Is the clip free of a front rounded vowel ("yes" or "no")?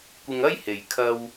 yes